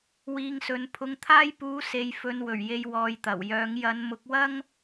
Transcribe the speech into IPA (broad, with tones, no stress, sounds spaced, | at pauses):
w iː˧ ŋ s ɵ˨˧ n pʰ ʊ˧ ŋ t̪ʰ aː˥ j p uː˧ s e˨ j f ɵ˨˧ n w ɵ˨˩ ɥ j e˧ j w ɔː˧ j t̪ ɐ˨˩ w j œː˨˥ ŋ j ɐ˨˧ n m ʊ˨˥ k̚ w ɐ˥ ŋ